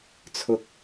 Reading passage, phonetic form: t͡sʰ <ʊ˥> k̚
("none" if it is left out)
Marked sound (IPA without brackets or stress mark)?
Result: ʊ˧